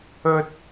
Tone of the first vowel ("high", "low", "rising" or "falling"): high